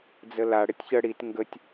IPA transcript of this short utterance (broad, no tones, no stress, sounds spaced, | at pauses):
d͡z ə l a ɽ ɘ tʲ ç ə ɽ i t ŋ ɡ ə tʲ